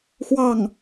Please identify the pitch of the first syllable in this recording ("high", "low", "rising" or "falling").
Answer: falling